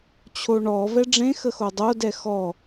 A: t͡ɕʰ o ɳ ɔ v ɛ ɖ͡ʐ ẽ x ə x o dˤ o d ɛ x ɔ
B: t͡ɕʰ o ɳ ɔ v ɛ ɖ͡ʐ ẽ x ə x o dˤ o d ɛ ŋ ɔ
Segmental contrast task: A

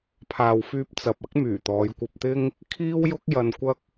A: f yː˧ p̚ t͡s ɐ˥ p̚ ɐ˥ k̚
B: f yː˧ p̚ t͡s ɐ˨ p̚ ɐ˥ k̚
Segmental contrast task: B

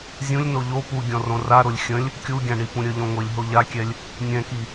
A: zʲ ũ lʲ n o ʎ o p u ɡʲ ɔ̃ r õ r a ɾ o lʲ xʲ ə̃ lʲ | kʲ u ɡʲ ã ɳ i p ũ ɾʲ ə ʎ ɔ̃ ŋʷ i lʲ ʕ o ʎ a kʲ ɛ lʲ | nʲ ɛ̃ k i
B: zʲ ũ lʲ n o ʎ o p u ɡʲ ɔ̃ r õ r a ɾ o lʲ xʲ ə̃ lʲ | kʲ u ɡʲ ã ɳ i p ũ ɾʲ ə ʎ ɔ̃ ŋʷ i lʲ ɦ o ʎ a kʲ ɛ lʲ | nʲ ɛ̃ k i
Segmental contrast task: B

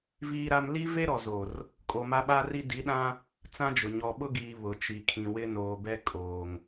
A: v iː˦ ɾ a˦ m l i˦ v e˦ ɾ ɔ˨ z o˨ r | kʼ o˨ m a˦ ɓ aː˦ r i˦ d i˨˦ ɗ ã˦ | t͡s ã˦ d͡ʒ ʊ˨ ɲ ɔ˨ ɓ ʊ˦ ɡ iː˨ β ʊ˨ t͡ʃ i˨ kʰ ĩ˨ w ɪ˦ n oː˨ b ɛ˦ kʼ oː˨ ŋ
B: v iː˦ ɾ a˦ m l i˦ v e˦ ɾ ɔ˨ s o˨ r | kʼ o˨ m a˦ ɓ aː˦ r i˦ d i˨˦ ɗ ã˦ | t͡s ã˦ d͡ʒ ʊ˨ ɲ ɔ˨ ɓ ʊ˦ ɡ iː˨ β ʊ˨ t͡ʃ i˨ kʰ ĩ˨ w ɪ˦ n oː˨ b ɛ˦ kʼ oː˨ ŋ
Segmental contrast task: A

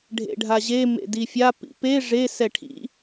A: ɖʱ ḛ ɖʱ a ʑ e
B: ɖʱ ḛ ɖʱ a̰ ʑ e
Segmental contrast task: A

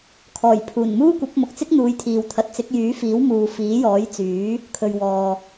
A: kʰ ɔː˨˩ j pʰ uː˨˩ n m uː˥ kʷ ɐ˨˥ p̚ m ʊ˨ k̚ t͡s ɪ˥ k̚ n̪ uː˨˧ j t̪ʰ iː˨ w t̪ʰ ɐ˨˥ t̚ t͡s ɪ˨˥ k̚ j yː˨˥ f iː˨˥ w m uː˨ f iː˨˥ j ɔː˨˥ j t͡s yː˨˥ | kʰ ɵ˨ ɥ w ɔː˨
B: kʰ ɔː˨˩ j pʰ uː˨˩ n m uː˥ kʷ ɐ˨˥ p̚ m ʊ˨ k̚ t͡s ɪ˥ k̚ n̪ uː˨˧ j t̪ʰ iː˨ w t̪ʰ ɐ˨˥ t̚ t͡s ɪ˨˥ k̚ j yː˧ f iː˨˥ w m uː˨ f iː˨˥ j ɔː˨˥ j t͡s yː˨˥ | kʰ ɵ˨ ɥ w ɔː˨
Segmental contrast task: A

